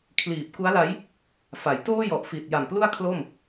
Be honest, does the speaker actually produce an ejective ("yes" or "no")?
no